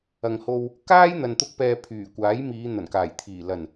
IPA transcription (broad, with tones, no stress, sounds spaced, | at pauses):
ɐ˨ ŋ h o˧ w | k aː˥ j n̪ ɐ˧ n t̪ ʊ˥ k̚ p ɛː˧ pʰ yː˨˩ kʷ aː˨˥ j m iː˨˧ n̪ ɐ˨˩ n k aː˨˩ j t̪ʰ iː˨˩ l ɐ˨˩ n